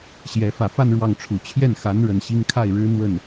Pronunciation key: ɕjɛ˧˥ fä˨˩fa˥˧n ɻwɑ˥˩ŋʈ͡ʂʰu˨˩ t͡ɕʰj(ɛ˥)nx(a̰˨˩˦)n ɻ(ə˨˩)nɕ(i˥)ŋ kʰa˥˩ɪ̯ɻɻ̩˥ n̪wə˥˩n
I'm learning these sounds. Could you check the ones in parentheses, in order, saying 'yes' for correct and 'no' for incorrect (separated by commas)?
no, no, yes, yes